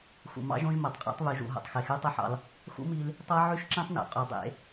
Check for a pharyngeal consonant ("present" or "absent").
present